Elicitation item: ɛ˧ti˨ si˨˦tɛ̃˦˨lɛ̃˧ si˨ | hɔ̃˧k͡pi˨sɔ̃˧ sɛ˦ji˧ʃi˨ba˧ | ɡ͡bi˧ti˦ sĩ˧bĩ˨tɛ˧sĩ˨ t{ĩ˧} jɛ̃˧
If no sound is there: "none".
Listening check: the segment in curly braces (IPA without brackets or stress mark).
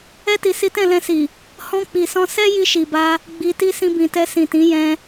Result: ĩ˨˦